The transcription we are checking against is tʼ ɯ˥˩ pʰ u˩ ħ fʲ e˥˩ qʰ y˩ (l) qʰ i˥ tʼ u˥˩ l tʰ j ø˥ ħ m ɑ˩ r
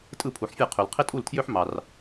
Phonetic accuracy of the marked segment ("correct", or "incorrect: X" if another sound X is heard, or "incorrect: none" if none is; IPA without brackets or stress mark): correct